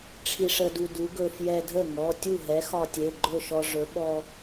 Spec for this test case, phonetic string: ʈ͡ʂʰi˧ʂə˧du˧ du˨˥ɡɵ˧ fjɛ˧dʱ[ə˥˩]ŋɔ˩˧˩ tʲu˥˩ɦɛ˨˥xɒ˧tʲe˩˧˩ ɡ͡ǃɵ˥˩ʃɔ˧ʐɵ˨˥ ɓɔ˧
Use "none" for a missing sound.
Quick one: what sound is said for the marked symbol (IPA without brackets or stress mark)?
ə˥˩